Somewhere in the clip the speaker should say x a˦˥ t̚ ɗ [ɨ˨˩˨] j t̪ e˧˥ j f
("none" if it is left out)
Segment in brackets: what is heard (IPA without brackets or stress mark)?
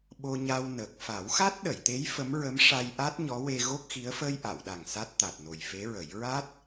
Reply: ə˨˩˨